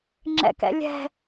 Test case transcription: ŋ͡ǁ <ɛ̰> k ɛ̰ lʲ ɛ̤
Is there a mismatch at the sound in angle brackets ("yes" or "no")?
no